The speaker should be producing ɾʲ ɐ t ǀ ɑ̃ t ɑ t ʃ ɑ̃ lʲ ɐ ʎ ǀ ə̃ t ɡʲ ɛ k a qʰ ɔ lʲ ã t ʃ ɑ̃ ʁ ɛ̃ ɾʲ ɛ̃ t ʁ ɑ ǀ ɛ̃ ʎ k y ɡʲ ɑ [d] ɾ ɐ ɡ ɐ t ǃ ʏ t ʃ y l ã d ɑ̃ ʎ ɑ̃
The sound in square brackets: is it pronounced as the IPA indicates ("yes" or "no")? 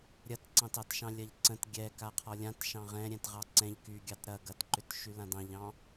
no